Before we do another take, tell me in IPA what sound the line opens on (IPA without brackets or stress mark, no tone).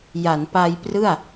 j